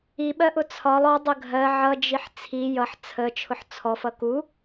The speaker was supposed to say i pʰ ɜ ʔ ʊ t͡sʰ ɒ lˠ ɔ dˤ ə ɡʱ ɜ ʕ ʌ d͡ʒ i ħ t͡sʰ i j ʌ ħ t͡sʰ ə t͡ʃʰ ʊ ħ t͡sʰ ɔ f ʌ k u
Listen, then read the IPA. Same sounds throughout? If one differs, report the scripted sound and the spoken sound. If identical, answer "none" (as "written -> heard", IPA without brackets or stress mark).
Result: pʰ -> ɓ